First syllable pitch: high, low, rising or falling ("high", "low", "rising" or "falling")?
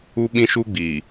high